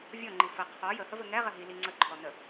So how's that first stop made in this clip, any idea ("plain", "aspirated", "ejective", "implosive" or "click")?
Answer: click